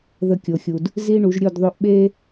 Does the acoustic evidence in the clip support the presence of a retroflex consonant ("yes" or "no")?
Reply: yes